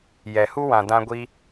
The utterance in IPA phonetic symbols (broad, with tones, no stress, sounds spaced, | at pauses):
j ɛ˨ h u˦ w ã˨ d ã˧ ɡʷ i˧